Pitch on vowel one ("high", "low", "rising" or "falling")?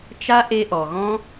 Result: high